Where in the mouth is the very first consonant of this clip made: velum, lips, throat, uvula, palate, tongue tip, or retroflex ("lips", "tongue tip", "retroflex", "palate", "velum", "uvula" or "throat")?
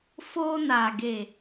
lips